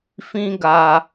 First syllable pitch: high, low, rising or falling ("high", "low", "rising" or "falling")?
high